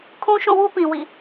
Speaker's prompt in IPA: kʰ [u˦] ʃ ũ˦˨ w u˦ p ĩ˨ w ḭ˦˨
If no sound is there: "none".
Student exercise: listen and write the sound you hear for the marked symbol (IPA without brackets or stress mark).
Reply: ũ˦